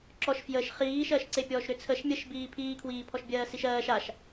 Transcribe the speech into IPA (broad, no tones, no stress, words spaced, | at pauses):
ǁɔʃ fjəʃ χiːʃɜːʃǀepʲɔːʃ ɾʏt͡sʰəʃ mʲəʃbiː pʰiːkʰwiː pʰɔʃbʲɜːsiʃɜːʃ aʃ